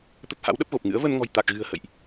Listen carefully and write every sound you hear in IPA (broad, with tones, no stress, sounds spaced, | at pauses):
t̪ ə˦˥ t̚ h a̰˧˥ w ɗ ə˦˥ p̚ ɣ o˨˩ p̚ ŋ ɨ̰˧˥ ə̯ v ə˧ n ŋ ɔ̤˨˩ j t̪ a˨˩ k̚ ɣ ɨ̤˨˩ ə̯ h ə̰˧˨ j ʔ